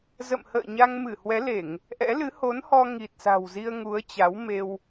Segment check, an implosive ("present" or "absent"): absent